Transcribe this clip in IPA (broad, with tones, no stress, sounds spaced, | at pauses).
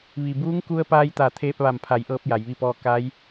ʋ i˩ b uː˧˥ ŋ k u˧ ə̯ p aː˧ j t̪ a˧˩ t̪ʰ eː˧ p̚ ʋ a˧˩ m pʰ a˩˧ j ʔ ɤː˧ p̚ j a˩˧ j ʋ i˥˨ p ɔː˥˨ k a˧˥ j